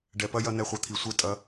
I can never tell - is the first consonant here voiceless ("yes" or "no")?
no